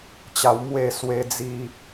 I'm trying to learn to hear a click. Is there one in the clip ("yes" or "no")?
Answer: no